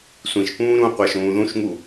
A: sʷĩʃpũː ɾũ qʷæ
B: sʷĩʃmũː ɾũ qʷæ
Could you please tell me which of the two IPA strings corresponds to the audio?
A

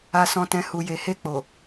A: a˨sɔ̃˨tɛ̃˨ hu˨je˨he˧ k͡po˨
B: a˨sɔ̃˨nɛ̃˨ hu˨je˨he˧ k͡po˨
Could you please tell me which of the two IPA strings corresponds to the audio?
A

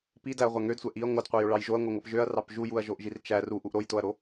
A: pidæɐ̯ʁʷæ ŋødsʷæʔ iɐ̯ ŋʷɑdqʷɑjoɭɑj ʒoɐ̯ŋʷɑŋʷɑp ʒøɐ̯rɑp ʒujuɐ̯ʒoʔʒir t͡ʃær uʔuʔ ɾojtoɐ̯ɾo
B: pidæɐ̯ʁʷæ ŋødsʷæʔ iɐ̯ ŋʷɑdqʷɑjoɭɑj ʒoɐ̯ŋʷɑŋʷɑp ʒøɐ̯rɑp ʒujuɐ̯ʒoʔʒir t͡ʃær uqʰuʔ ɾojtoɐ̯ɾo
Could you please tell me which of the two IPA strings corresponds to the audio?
A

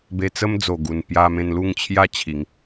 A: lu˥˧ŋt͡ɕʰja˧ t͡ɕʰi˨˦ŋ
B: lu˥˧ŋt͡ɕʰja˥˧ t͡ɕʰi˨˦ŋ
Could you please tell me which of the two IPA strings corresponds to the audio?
B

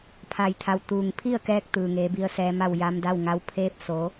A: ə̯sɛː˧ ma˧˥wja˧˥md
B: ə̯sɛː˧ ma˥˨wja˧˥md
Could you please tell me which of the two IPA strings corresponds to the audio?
B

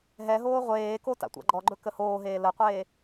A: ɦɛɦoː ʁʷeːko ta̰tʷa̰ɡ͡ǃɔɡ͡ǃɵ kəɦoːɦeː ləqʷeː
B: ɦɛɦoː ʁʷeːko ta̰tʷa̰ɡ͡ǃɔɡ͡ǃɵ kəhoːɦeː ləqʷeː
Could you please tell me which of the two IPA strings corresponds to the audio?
B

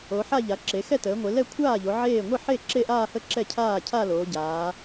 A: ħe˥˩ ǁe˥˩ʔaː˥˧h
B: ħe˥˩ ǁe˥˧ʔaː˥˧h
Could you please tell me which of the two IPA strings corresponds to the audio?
B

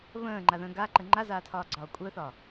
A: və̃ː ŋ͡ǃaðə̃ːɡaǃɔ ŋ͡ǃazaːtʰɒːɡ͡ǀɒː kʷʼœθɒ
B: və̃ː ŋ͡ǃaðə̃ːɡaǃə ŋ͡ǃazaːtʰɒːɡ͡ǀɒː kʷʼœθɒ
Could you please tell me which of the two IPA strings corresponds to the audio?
B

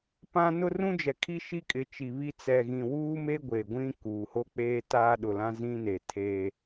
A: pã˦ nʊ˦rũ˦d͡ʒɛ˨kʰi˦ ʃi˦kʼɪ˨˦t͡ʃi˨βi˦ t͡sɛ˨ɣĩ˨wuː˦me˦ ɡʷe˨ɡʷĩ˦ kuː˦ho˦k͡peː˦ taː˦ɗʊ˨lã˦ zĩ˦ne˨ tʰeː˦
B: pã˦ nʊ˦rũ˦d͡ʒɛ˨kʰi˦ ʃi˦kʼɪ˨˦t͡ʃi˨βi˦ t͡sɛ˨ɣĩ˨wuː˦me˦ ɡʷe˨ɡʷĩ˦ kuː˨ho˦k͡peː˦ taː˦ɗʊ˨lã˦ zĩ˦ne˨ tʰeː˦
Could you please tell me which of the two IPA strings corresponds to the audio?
B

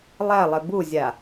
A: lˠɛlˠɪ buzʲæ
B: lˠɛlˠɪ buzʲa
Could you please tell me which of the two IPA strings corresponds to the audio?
B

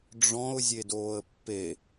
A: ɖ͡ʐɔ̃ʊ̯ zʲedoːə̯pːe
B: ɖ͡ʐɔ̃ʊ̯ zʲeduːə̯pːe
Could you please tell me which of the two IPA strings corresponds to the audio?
A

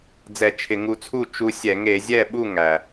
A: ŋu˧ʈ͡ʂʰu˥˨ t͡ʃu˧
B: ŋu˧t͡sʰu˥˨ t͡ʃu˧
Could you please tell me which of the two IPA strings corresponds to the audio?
B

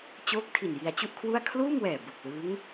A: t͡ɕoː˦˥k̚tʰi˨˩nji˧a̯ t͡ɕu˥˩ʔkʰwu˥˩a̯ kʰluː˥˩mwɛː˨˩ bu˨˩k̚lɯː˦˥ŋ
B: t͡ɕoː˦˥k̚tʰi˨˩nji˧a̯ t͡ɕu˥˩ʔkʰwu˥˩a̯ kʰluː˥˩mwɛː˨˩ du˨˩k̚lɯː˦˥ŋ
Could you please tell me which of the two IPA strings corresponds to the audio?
A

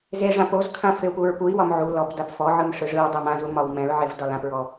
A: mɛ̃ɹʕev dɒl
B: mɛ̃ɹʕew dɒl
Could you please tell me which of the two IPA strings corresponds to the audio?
A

